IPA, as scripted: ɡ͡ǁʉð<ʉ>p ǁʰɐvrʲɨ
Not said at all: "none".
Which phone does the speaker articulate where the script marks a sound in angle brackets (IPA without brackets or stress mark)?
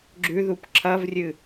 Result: u